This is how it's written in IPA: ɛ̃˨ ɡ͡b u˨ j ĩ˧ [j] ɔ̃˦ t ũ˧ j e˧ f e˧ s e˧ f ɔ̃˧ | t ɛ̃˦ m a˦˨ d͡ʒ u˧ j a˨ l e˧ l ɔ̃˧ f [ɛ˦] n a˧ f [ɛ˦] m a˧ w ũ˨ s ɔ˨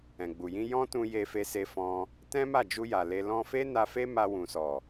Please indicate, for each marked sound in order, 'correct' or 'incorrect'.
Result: correct, incorrect, incorrect

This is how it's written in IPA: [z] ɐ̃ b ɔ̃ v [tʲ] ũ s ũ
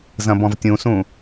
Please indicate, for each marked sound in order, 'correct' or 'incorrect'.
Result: correct, correct

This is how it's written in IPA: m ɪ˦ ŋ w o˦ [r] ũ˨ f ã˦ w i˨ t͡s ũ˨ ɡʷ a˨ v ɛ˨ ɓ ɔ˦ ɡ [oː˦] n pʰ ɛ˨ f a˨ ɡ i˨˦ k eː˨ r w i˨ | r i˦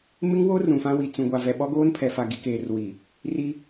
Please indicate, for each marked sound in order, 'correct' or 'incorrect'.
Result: correct, correct

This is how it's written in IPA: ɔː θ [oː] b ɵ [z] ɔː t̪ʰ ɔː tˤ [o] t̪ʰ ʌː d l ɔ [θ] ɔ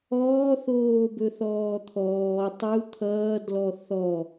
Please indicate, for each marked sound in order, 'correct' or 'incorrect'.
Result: correct, incorrect, incorrect, correct

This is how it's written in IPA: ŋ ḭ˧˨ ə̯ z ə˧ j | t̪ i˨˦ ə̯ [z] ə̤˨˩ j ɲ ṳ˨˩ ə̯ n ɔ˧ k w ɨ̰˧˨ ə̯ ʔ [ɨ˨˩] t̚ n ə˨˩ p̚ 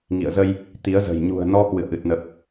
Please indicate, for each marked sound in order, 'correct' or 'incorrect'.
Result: correct, correct

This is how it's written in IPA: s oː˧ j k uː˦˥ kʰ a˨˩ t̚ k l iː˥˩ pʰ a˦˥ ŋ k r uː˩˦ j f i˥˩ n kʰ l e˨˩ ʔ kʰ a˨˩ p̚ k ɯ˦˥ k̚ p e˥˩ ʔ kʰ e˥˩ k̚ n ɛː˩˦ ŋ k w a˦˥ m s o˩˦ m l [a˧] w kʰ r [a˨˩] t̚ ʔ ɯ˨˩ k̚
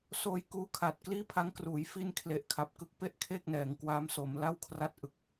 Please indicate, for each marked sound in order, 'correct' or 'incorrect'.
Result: incorrect, incorrect

